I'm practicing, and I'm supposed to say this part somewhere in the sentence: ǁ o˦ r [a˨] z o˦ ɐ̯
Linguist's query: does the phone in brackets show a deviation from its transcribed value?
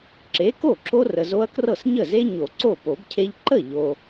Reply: yes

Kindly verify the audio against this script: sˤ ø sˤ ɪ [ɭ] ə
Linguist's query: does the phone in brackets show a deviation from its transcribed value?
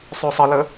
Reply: yes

